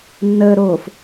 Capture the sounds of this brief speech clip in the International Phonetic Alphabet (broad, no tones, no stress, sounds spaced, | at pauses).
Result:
nː əː ɾ oː f